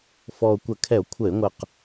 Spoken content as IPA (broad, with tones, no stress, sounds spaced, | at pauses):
f ɔ˨˩ o̯ kʷ ə˧˩˧ kʰ ɛ˧˩˧ o̯ kʷʰ ə˧˩˧ e̯ ŋʷ ə˨˩ q